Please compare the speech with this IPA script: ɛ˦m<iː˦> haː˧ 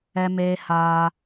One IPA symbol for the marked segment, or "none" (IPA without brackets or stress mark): eː˦